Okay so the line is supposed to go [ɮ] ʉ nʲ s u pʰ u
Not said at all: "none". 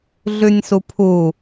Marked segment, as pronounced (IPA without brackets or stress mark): ɮ